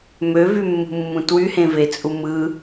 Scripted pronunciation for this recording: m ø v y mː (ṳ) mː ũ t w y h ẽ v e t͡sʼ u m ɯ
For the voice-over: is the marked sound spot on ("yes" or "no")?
yes